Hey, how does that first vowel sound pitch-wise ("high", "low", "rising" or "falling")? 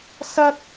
high